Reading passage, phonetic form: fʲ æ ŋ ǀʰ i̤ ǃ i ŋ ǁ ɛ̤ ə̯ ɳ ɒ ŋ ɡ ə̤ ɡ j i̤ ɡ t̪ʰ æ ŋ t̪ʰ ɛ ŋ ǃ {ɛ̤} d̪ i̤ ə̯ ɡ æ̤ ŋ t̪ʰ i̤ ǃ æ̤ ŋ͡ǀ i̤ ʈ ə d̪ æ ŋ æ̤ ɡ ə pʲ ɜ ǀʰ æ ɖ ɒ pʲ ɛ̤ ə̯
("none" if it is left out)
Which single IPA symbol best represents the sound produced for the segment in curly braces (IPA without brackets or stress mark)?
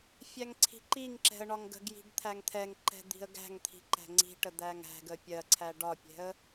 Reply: ɛ̤